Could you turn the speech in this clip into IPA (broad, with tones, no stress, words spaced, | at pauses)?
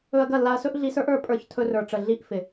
ɵ˧ɐ̯ɡɐ˦˨lːa˧ɐ̯sɵ˦ʔ ɮi˧sə˞˦ʔə˞˧ pʼə˞˧ç tʰɵ˧rə˞˨ʈ͡ʂə˨ ɮi˧ʔ fɪ˨